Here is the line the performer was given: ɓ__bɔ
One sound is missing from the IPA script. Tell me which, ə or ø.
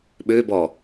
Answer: ø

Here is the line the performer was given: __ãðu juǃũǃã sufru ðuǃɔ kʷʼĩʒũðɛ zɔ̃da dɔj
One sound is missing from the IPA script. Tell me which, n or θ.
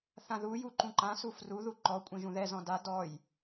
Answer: θ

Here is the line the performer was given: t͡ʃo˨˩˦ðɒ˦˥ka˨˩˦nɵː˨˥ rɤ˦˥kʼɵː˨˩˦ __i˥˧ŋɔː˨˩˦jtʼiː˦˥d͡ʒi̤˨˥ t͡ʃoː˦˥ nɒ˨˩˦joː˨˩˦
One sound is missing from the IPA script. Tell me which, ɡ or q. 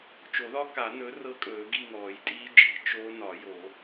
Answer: ɡ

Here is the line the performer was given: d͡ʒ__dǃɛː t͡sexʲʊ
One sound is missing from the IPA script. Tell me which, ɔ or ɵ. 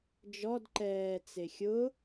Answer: ɔ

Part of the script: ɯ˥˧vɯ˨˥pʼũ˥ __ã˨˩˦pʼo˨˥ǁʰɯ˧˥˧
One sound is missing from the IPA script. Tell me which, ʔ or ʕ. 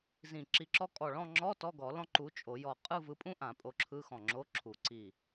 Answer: ʔ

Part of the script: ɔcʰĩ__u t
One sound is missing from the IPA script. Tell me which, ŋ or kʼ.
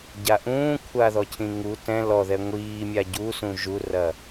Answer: ŋ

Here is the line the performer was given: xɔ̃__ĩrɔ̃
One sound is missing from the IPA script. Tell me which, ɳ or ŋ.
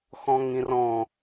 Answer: ŋ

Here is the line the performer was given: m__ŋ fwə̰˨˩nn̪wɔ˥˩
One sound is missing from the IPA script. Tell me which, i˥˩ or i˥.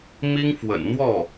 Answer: i˥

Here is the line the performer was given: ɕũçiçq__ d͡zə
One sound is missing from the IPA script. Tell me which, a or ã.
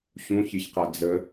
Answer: a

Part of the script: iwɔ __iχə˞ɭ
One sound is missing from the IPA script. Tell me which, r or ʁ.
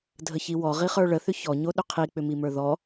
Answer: ʁ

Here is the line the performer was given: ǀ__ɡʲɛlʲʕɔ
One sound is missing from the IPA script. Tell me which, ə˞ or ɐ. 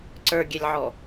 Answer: ə˞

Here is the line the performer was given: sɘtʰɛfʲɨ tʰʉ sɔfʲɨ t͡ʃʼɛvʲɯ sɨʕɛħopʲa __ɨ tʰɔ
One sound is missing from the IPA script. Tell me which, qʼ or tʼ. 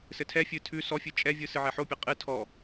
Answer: qʼ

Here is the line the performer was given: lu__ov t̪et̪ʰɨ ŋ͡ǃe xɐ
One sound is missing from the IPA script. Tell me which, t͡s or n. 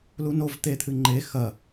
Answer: n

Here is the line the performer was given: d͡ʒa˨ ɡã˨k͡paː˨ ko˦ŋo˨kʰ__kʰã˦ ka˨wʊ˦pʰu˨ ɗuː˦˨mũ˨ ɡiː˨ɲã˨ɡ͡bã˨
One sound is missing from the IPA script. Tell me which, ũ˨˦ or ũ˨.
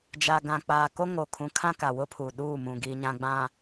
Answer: ũ˨˦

